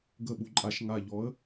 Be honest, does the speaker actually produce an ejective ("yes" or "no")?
yes